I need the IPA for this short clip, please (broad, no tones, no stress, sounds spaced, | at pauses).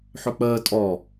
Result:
ħ ɵ k͡p əː tʼ ɔ